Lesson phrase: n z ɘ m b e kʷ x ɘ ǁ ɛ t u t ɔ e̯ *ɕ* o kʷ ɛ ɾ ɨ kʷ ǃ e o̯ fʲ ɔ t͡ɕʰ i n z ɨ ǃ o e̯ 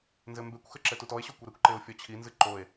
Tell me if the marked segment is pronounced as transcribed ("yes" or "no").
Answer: yes